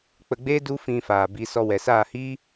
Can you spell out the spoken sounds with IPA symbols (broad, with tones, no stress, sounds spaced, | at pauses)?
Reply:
k͡p ə˧ ɡ͡b eː˦ d u˦ f ĩ˧ f aː˨ b i˨˦ s ɔ˧ w ɛ˨ s aː˦˨ h iː˦